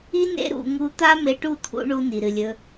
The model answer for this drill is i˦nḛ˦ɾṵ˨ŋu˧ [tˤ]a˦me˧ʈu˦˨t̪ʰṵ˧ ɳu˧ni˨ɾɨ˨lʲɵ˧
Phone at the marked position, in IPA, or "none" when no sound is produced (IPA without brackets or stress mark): t̪